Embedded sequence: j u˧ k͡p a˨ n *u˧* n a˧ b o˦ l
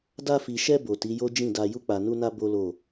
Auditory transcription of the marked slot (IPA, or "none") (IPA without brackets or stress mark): u˧